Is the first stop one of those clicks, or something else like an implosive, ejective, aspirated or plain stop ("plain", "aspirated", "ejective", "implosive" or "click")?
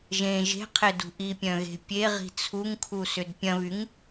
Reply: aspirated